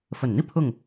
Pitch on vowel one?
low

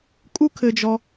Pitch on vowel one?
high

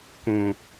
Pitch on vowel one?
low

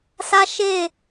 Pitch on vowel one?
high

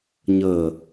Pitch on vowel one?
low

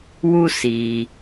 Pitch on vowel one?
high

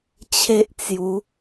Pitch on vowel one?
high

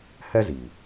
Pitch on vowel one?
high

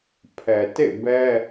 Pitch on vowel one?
low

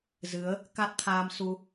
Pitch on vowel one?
rising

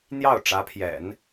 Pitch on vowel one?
falling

